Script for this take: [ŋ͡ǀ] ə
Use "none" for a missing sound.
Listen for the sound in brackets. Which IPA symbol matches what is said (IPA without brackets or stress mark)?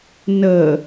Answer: n